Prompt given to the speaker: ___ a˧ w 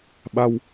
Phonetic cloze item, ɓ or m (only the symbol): ɓ